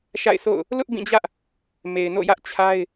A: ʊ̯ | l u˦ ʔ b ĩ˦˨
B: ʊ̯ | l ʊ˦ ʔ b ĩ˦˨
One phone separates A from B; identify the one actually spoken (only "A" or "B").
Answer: B